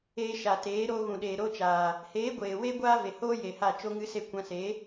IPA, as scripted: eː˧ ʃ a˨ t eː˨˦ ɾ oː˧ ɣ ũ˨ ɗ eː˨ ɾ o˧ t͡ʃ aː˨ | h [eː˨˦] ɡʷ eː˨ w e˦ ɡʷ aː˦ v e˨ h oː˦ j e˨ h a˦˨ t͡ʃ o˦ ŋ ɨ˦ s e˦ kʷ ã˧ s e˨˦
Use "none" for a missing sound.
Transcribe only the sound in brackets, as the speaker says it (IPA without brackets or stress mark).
eː˨˦